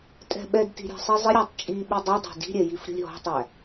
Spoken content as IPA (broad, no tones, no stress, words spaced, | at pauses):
tʼɛ̤ɓɛdti̤ ɾʲæ̤sˤizˤɪɾʲætˤ t͡ʃʼi ɓidˤudˤæ̤ di̤ɾʲɛ jifɾʲṳlʲɦɔ̤tˤæ